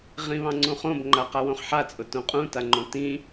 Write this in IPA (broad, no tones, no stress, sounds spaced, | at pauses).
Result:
ʁ ĩ β ɑ̃ ŋ͡ǀ ũ χ õ b ŋ͡ǃ a q a w õ χ ħ a t͡sʼ ʊ t õ qʼ ũ t a ŋ͡ǃ õ t ĩ